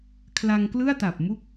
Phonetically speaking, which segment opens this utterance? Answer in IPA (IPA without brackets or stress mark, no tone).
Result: kʰ